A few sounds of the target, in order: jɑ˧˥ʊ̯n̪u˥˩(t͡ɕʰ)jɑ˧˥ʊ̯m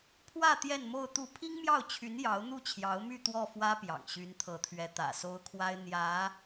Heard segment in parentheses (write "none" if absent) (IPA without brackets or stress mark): t͡ɕʰ